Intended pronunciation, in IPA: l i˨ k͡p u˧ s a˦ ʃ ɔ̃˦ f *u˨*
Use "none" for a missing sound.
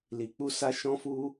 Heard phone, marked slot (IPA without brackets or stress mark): u˦